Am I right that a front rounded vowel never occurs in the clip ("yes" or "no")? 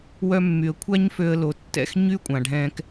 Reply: no